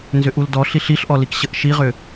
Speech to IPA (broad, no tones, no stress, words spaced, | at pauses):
nzʏʔuldɔ ɬiɬiɬʔɔlik ɕəʔʃiʁʏ